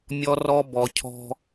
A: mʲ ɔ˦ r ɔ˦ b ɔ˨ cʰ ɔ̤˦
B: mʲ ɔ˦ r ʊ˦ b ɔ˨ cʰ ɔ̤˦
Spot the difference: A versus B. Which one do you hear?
A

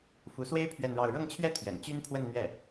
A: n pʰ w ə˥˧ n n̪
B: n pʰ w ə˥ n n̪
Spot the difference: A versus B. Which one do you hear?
A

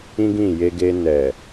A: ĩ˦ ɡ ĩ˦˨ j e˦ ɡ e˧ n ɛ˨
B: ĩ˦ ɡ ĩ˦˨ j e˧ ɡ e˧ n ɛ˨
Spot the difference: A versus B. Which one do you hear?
B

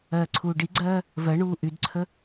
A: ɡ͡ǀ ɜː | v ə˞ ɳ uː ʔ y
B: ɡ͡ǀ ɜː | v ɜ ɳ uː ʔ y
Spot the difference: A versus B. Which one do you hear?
B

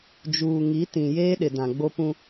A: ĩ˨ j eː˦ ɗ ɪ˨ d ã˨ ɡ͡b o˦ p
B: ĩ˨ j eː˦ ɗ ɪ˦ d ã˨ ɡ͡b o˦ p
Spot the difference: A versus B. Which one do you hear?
A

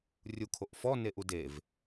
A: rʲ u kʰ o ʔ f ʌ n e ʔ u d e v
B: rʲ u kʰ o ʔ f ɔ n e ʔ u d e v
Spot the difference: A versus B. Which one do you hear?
B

